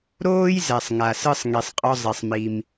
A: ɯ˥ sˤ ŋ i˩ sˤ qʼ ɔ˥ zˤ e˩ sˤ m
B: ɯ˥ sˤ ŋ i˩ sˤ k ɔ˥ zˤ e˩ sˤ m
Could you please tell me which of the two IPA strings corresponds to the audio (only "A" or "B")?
A